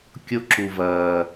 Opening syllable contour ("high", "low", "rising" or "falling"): low